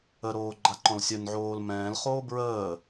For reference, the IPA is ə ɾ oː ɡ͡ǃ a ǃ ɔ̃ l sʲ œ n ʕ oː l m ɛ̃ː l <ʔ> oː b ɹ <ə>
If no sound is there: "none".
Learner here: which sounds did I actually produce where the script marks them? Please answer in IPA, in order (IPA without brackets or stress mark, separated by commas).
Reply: χ, əː